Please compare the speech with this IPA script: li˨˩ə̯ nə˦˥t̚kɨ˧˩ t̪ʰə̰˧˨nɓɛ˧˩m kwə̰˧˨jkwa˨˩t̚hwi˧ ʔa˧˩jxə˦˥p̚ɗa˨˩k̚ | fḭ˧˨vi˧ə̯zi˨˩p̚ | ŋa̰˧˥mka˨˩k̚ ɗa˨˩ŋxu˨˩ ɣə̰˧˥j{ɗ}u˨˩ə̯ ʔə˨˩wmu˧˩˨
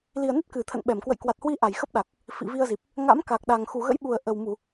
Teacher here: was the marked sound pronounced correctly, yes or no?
no